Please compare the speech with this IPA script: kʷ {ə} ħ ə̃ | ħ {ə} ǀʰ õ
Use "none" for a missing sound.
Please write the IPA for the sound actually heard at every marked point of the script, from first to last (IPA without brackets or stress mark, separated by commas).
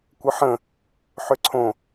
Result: ə, ʏ